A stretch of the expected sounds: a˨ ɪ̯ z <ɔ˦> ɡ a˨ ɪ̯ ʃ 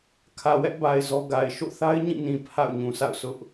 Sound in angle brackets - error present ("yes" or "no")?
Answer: no